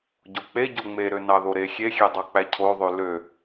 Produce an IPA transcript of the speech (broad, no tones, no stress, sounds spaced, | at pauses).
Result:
ɟ o k͡p e ɟ o ŋ͡m e ɾ ø n ɑ ð o ɾ e xʲ e xʲ e dˤ ɑ k͡p æ cʰ o ðˤ ø l ø